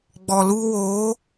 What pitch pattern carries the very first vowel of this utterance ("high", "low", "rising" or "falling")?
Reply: low